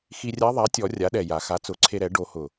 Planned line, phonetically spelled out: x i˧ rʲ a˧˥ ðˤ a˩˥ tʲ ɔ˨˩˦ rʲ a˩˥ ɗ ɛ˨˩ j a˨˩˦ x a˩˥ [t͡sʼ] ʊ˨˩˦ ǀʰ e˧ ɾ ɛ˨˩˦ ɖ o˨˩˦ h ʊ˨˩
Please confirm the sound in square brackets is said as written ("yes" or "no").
no